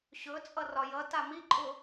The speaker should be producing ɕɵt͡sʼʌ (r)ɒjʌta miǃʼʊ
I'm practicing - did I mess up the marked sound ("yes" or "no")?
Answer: no